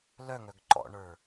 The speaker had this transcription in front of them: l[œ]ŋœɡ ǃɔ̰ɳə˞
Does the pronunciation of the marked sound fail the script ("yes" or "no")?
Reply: no